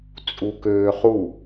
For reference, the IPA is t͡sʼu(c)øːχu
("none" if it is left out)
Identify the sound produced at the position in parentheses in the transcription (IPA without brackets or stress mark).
k